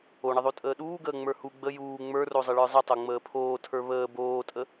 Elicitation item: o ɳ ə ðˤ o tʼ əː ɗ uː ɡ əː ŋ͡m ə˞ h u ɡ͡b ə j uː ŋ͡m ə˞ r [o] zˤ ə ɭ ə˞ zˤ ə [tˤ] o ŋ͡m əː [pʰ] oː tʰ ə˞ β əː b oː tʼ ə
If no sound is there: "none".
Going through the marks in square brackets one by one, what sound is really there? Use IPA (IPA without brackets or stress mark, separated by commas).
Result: o, tˤ, pʰ